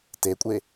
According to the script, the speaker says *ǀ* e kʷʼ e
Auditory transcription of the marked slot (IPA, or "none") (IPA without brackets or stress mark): t